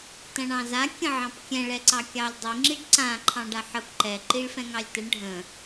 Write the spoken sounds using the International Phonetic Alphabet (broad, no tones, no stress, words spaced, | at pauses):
tɐ̃ɳɑ̃za kʲə̃ʕɑ̃pkʲɛ̃ ɭɛǀɑkʲɑlʲdˤi ŋ͡ǁiɖǀã ǃʰɑ̃ɖaħəp ǃɛ ǃiɭfɛ̃ŋɑlʲtəɳ ɖʱə̃